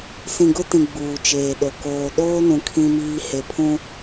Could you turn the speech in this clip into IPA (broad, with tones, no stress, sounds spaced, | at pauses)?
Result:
s ĩ˨ ɡ ʊ˦ t ĩ˨ ɡ͡b uː˨ t͡ʃ eː˨ ɗ o˨ k oː˨ ɗ oː˦ n ũ˨ kʰ ĩ˦ m iː˦ h e˨ pʰ ũ˦